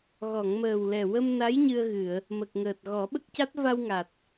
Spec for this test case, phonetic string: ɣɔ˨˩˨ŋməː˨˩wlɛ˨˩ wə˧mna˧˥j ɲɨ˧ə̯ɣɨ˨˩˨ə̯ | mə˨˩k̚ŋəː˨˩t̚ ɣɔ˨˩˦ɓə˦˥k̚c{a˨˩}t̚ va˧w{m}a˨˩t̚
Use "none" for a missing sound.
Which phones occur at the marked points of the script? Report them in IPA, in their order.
a˦˥, ŋ

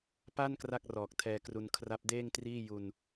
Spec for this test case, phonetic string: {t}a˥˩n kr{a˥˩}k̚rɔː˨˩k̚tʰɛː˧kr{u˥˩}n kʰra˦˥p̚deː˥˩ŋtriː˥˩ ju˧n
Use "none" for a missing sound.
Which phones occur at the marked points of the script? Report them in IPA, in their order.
p, a˥˩, u˧

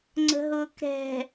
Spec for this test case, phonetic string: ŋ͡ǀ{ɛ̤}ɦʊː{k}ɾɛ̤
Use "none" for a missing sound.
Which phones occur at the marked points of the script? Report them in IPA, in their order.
ə̤, k

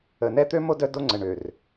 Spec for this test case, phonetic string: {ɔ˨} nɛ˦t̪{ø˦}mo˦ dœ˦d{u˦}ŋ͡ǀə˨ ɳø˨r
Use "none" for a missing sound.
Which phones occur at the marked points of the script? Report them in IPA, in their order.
ə˨, ø˦, o˦

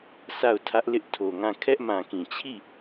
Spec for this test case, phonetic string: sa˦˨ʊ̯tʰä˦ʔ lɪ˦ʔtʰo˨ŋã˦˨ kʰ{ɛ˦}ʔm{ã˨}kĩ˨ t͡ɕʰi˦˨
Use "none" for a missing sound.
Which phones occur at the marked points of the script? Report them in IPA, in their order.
ɛ˦, ã˨

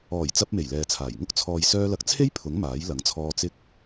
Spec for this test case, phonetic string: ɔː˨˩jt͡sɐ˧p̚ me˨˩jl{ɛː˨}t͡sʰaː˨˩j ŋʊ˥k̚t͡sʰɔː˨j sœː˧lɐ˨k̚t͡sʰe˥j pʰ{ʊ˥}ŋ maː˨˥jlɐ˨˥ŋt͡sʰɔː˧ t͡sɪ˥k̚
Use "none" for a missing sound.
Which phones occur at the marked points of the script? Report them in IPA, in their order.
ɛː˨, ʊ˨˥

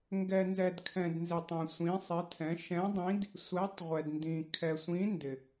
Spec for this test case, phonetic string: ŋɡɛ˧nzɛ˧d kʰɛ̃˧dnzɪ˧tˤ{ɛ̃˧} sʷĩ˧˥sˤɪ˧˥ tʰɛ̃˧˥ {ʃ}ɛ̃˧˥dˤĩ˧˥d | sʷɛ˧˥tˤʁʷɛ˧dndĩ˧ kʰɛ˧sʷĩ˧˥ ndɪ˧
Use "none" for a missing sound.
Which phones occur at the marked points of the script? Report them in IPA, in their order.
ɛ̃˧, ʃ

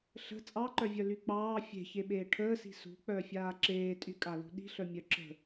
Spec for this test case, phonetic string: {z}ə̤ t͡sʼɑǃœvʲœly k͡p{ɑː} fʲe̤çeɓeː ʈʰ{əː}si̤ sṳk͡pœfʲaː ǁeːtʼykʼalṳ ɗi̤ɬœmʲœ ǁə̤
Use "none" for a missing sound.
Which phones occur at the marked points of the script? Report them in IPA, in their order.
ɬ, ɑː, əː

